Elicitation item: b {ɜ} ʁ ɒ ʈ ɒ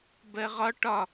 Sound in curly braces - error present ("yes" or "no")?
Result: no